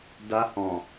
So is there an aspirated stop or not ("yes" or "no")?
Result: no